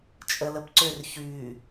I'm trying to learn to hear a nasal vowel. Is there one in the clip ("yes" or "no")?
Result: no